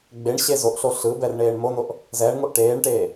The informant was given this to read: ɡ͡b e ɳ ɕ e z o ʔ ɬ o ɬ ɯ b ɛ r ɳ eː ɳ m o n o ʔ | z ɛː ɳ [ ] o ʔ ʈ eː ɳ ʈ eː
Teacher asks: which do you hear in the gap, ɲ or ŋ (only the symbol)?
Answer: ŋ